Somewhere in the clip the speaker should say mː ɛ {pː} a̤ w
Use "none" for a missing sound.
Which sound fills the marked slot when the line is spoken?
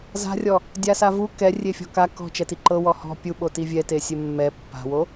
pː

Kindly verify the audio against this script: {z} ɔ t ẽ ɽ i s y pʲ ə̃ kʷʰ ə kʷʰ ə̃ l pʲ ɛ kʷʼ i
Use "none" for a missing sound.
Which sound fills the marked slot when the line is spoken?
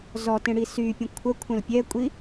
z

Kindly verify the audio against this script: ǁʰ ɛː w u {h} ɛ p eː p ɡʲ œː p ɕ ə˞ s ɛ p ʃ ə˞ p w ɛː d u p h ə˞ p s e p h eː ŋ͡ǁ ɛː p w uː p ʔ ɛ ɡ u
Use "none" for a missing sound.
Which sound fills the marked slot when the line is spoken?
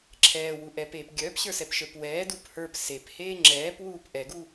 ʔ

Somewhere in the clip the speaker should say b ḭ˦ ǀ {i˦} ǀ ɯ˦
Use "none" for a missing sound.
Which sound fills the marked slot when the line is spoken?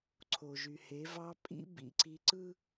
i˦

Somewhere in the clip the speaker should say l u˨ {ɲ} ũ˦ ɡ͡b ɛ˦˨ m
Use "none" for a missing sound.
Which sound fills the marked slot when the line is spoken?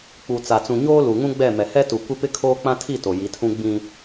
ŋ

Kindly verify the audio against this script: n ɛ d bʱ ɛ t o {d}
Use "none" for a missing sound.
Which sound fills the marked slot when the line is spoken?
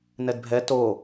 none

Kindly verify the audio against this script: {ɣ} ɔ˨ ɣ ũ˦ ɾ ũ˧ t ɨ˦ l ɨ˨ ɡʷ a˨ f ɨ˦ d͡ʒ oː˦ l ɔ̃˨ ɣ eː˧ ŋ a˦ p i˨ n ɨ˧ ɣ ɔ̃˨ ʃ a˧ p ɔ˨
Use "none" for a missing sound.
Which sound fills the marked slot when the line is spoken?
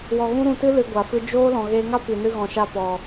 w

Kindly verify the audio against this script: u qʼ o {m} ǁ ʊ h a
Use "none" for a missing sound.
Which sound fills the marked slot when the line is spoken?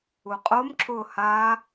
m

